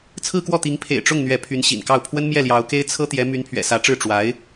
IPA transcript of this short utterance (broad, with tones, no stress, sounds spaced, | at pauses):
t͡sʰ ɹ̩˥˧ k w ɔ˥˩ t̪ i˧˥ ŋ pʰ ḛ˨˩ ɪ̯ ʈ͡ʂ ʊ˥˩ ŋ n̪ ɥ ɛ˧˥ pʰ y˧˥ n ɕ ḭ˨˩ n k ɑ˥˩ ʊ̯ pʰ w ə˥ n m j ɛ˥˩ l j ɑ˧˥ ʊ̯ k e˥ ɪ̯ t͡sʰ ɤ˥ t̪ j ɛ˧˥ m y˧˥ n pʰ ɥ ɛ̰˨˩ s ä˧˥ ʈ͡ʂ ɻ̩˥˩ ʈ͡ʂ w a˧˥ ɪ̯